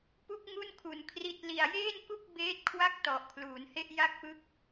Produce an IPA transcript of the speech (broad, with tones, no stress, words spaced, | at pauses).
pu˥˩k̚ŋu˥˩nkʰu˨˩n kʰri˨˩t̚li˨˩a̯jeː˥˩nku˥˩k̚ beː˦˥t̚kʰwa˥˩k̚ tɔ˨˩ʔkʰluː˩˦nhe˥˩ʔ ja˥˩k̚pɯ˦˥k̚